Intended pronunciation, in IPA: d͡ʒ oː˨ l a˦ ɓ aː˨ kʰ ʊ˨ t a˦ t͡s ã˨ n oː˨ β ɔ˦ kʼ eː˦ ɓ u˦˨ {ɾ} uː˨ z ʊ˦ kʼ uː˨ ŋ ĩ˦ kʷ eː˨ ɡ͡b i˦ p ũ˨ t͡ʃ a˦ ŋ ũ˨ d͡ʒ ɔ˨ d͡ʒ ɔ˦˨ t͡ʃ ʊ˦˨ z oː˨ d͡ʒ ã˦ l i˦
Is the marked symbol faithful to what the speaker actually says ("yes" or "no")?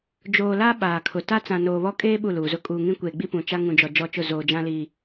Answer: no